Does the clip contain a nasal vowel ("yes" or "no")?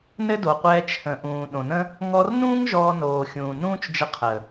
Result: yes